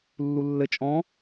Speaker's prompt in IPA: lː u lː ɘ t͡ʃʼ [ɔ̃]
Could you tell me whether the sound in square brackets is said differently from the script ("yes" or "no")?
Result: no